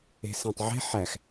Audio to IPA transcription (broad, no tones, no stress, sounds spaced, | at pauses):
e̤ s æ̃ tˤ ʕ e̤ ħ æ x